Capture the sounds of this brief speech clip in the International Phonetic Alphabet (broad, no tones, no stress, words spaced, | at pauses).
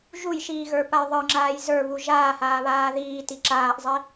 ʒujʃiːɣə˞paj ðˤə˞ŋ͡ǁaːj zə˞βu ʒaːhaːβaː ðiːti ǁaːʔzˤi